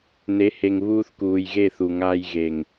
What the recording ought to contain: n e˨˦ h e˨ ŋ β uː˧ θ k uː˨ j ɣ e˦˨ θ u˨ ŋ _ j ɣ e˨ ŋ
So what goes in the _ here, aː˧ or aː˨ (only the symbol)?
aː˧